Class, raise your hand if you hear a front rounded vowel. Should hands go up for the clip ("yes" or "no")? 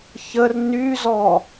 yes